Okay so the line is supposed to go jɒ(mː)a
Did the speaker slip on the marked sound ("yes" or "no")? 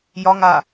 yes